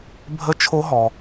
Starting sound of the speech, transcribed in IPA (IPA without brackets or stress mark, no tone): bʱ